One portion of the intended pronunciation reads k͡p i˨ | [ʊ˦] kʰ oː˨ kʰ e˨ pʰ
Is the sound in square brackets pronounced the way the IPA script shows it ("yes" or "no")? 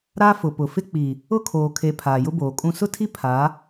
yes